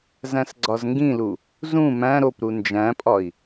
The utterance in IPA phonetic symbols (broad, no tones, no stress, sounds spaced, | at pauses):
z æ̃ s ɡ͡ǀ ɒ z ŋ ɡ ĩ l u | z ũ m æ̃ ɾ o p ɾ u n d͡ʒ æ̃ pʼ ɒ i̯